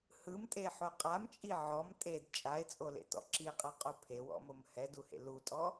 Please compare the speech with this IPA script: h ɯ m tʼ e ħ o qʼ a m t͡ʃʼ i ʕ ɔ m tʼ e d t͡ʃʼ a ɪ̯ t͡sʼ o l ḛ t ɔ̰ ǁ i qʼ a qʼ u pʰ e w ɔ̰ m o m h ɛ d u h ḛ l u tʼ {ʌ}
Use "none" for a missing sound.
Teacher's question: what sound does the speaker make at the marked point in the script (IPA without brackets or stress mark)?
ɔ